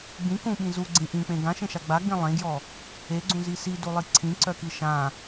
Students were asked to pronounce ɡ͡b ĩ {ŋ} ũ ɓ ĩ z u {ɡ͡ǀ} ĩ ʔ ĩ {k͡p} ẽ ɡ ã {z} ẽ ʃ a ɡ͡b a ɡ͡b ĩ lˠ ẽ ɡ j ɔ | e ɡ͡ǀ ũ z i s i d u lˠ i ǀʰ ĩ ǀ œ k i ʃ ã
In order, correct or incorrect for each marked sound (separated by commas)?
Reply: incorrect, correct, correct, incorrect